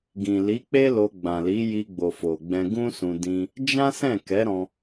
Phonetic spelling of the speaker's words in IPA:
ɡ ĩ˨ l i˨˦ k͡p e˦ l o˧ ɡ͡b ã˨ l i˨˦ j i˧ ɡ͡b o˨ f o˨ ɡ͡b ɛ̃˧ ɡ ũ˦ s ũ˧ d ĩ˧ | d͡ʒ ã˦ s ɛ̃˦˨ k ɛ˨˦ ɾ ɔ̃˧

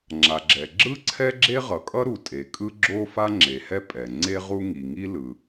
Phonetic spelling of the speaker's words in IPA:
ŋ͡ǁ a˩ ɡ͡ǁ ɛ˩ ɡ͡ǁ ɯ˥ ǀʰ ɛ˥ ɡ͡ǁ e˥ ʁ ʌ˩ kʼ ʌ˥ ɾ u˩ tʼ e˩ kʼ ɯ˥ ɡ͡ǁ o˥ f a˥ ŋ͡ǁ e˩ h ɛ˥ pʼ ɛ˩ ŋ͡ǀ e˥ ʁ u˥ ŋ i˩ ŋ i˥ l ɯ˩

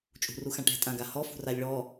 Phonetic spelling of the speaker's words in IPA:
t͡ʃʼ ṳ r u x ã ʈ ɛ̤ tʼ ã ɡ a h ɔ f ṳ r a lʲ ɭ ɔ

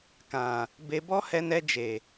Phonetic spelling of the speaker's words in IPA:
k ã˨ | b e˧ b ɔ˦ h ɛ˧ n ɛ˧ d͡ʒ e˨

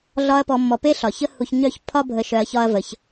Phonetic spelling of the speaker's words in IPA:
ɮ ɒ˧ ɐ̯ p ɔ˧ mː ɔ˧ p e˦ ɬ ɒ˨ ç ə˦ h u˧ ç ɲ œ˦ ç pʰ ɒ˦ bʱ ə˧ ʃ œ˧ ɐ̯ ç ɒ˦ ɐ̯ v ə˧ ç

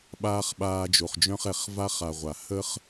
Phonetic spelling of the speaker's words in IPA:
ɓ aː˥ χ ɓ aː˦ d͡ʒ o˨ χ d͡ʒ œ̃˥ χ ɛ˩ χ v a˦ χ a˨ ʁʷ a˩ h ə˦ χ

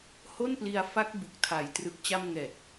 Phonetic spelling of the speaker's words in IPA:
h o˥˩ n p l i˧ a̯ f a˦˥ k̚ b u˨˩ k̚ tʰ a˨˩ j t r ɯ˨˩ k̚ t͡ɕ a˧ m ŋ ɛː˨˩ t̚

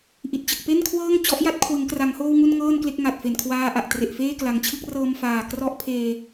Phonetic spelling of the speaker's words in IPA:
ʔ i˨˩ t̚ t͡ɕ ɯ˨˩ k̚ p e˥˩ n kʰ w ɤː˥˩ ŋ t͡ɕ ɔ˦˥ ʔ j a˦˥ t̚ kʰ w ɯ˩˦ ŋ k r a˩˦ ŋ h oː˧ w ŋ u˧ n ŋ ɤː˥˩ n k l e˥˩ k̚ ŋ a˨˩ t̚ f e˨˩ n kʰ w aː˧ ʔ a˨˩ ʔ t r e˨˩ ʔ f eː˥˩ k l a˨˩ ŋ t͡ɕʰ ɯ˥˩ k̚ r ɤː˧ m f aː˨˩ k r ɔ˦˥ ʔ pʰ eː˧

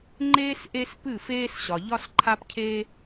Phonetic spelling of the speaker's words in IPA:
ŋ͡ǃ eː˦ s ʔ e˦ s p ɨ˦˨ f eː˦ s ɕ ɒ˨ ʎ ɒ˦ s ǃʰ a˦ p cʰ eː˦

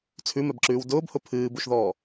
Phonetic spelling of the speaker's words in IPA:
t͡sʰ ʉ m ɛ b ǁ ʉː w d ʊː b h ʊ pʰ ɨː b u ʃ ð ɔː

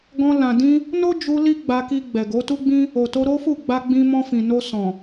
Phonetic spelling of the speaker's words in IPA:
ɡ ɔ̃˧ l ã˨ d ĩ˧ | n o˦ d͡ʒ u˧ l i˦ ɡ͡b a˧ k i˧ ɡ͡b ɛ˨ ɡ o˨˦ t u˦ ɡ͡b ĩ˦ | o˨ t o˧ ɾ o˦ f u˦˨ ɡ͡b a˧ ɡ͡b ĩ˧ m ɔ̃˧ f ĩ˨ n o˧ s ɔ̃˨

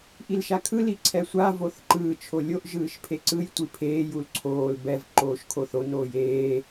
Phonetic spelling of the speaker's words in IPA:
ʔ i l ʃ a kʰ ɯ l i ǀʰ ɛ sʷ a v o θ ǃ ɯː t͡ʃʰ o lʲ o ʔ ʒ ɯː ʃ pʰ e ǀ ɯ j tʷ i pʰ eː j u l ǀʰ oː l b ɛ v ǃ oː ʃ kʰ o θ o n oː j eː

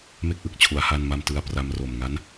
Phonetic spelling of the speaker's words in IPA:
m e˥˩ k̚ ʔ ɯ˨˩ k̚ t͡ɕʰ u˩˦ a̯ h a˥˩ n m a˥˩ m t ɯ˧ a̯ p r a˧ m r o˨˩ m ŋ a˦˥ n

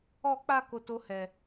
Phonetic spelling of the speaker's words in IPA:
ɔ˧ k͡p a˧ k o˦ t o˦ h ɛ˧

